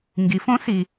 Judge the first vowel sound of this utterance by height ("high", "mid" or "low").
high